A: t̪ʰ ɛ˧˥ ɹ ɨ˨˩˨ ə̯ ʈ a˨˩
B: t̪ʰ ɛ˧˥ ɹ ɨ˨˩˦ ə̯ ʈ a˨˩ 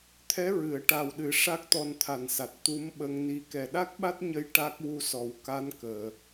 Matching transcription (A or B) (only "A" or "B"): A